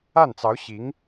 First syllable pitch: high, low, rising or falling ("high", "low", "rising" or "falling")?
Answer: falling